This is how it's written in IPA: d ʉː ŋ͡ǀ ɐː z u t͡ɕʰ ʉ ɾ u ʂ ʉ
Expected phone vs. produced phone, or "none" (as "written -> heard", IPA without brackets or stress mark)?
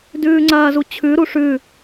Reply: none